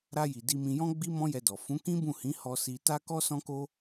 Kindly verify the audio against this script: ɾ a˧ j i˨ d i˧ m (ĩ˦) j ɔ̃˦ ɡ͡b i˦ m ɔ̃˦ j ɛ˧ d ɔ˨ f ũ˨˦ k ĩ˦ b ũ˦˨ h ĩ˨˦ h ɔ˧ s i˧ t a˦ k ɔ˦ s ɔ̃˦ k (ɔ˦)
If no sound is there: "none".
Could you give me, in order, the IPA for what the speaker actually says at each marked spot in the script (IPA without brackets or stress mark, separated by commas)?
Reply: ĩ˧, o˦